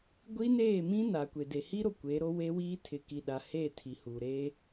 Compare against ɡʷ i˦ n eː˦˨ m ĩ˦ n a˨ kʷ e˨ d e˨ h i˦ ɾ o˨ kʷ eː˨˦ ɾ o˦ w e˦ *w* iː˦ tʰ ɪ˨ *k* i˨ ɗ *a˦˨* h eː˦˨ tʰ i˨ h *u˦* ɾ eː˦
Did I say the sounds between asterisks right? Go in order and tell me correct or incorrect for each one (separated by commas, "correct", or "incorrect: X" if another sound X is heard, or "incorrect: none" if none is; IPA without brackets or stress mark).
correct, correct, incorrect: a˨, incorrect: u˨